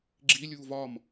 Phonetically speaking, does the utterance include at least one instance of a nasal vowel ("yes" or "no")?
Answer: no